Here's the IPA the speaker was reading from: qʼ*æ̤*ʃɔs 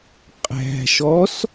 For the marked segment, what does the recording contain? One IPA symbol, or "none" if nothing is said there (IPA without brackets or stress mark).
æ̤